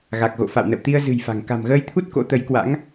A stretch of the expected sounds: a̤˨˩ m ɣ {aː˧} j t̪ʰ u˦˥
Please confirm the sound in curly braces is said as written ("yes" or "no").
no